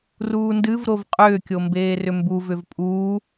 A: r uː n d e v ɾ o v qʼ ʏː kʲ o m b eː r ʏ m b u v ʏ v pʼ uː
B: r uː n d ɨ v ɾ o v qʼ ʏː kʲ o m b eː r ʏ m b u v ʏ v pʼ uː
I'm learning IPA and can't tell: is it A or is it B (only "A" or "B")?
B